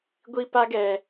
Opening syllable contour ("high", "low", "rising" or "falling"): high